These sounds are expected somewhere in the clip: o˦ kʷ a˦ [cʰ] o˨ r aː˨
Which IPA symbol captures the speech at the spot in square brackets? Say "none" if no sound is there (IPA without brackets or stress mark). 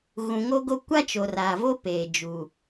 t͡ʃ